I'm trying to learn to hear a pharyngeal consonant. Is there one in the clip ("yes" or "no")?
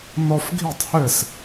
no